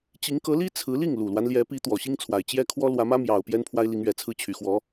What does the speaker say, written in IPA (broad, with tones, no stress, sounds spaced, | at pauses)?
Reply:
t͡ɕ i˧˥ ŋ k ɤ˧˥ l i˥ t͡sʰ ɹ̩˧˥ l i˥˩ ŋ l u˨˩ l w a˦ n l j ɛ˧˥ p i˧˥ t̪ w ɔ˨˩ ɕ i˥ ŋ t͡sʰ w a˨˩ ɪ̯ t͡ɕ j ɛ˥ kʰ w ɔ˥ l w ä˧˥ m ä˥ m j ɑ˨˩ ʊ̯ p j ɛ˥ n pʰ w a˥ ɪ̯ l i˧˥ ŋ ɥ ɛ˨˩ t͡sʰ ɹ̩˥˩ t͡ɕʰ y˨˩ x w ɔ˧˥